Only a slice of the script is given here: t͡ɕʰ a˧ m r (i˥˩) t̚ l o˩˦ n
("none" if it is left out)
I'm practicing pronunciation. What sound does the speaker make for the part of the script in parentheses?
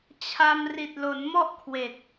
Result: i˨˩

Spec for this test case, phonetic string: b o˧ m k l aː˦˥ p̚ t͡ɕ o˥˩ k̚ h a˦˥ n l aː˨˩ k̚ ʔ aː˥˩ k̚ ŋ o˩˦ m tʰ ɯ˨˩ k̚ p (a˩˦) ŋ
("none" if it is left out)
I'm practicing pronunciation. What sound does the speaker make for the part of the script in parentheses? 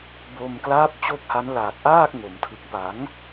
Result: a˩˦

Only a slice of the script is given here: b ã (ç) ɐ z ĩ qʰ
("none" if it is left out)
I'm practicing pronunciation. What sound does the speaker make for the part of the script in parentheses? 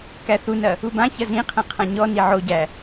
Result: ç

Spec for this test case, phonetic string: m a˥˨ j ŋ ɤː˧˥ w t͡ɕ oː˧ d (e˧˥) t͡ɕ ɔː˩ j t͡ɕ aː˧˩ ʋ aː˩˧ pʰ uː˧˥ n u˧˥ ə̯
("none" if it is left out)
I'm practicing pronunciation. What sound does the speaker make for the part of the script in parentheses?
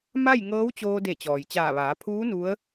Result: e˧˩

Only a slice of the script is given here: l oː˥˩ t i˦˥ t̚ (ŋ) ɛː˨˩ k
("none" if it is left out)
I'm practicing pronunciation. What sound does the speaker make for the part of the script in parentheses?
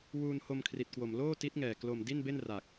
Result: ŋ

